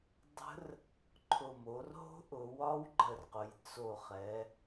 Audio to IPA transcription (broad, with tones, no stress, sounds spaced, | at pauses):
dˤ ə̤˦˥ r | ǃʰ ʊ˨˩ m o˩˧ r ɦ o̤˦˥ ʔ ʊ˩˧ w ɒ˦˥ w ɡ͡ǃ ə˨˩ r q ʊ˩˧ j t͡s o˨˩ χ ɛ˩˧